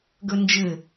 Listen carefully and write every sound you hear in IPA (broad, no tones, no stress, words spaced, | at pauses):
ɡɵnd͡ʒɘ